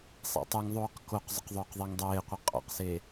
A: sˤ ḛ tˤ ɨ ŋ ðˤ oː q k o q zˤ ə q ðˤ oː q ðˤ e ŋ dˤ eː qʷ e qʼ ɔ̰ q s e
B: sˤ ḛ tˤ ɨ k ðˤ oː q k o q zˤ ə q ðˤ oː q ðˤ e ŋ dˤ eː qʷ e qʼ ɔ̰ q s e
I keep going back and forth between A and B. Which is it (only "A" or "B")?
A